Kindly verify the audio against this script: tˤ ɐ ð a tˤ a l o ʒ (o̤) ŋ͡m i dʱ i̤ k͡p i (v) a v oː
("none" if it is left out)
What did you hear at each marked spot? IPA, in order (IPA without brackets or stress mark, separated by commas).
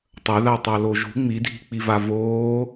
ṳ, v